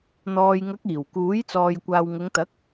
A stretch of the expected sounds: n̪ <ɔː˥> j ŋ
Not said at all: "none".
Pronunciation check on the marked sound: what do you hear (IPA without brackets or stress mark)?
ɔː˨